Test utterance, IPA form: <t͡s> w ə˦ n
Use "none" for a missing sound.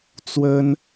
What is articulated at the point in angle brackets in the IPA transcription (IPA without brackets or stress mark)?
t͡s